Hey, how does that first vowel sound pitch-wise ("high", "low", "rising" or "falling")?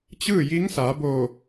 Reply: falling